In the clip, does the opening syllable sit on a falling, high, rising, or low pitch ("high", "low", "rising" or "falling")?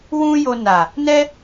high